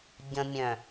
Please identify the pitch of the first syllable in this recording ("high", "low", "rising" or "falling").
low